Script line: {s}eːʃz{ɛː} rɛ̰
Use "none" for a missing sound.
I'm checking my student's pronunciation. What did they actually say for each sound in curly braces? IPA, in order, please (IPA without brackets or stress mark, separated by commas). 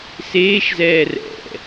s, ɛː